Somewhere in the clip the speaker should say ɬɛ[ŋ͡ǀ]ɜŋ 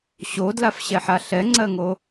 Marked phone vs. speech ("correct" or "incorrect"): correct